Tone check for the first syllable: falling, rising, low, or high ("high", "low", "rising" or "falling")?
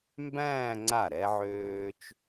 falling